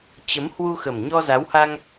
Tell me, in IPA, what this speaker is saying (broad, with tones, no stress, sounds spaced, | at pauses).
t͡ɕ ə˨˦ m h w u˧ x ə˨˩ m ɲ ɔ˧ z a˨˦ w h a˧ ŋ